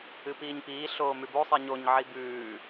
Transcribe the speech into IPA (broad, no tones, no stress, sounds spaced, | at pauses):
ɨ p iː ɲ p iː ɬ oː m ʉ b o sˤ i ɲ o ɲ ʕ i b ʉː